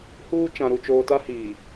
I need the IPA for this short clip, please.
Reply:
h uː˦ t͡ʃ ã˨ ɾ u˨ t͡ʃ oː˨ t a˦ h iː˨

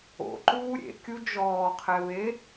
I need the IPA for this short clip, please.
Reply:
o̰ ǃ uː ɾʲ ḛ kʲ u d͡ʒ ɔː qʰ ɛ β e

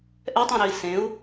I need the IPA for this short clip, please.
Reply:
ʔ ɛ tˤ ẽ ɾ ø i̯ s ẽ u̯

